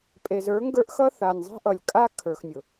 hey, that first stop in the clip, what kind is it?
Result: ejective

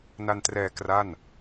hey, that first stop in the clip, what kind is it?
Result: plain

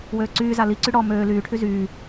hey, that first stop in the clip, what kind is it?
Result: click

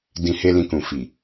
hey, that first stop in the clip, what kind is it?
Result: plain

